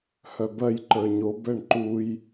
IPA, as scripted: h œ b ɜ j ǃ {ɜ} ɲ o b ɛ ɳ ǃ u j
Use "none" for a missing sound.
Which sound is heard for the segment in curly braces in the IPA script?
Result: ə˞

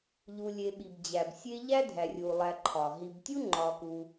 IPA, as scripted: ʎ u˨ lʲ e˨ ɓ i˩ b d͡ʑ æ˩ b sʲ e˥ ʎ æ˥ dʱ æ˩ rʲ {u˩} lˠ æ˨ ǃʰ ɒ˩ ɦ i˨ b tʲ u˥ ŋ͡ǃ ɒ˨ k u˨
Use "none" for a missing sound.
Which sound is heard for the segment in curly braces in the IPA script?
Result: u˩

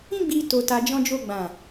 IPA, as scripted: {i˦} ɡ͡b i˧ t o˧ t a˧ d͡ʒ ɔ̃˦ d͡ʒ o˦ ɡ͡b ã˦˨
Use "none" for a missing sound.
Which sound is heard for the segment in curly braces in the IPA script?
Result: ĩ˦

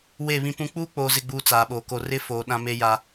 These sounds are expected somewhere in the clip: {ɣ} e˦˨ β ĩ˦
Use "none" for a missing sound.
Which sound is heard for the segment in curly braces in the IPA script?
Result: w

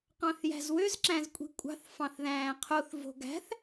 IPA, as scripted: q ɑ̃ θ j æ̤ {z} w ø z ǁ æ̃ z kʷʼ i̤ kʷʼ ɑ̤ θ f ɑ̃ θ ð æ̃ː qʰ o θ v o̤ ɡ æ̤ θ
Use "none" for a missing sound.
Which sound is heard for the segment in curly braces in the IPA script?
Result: z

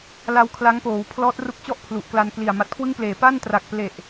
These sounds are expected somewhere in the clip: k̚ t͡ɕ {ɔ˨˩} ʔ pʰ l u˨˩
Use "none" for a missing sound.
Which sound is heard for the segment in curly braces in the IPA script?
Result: ɔ˥˩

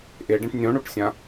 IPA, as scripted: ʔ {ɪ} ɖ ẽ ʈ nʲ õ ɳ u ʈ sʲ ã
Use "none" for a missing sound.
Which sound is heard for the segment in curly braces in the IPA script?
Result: ɪ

